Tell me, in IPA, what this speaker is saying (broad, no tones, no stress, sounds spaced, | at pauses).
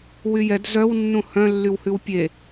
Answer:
w y j ɛ d z œ w nː ũ h œ̃ lː y w h ʉ w pʲ e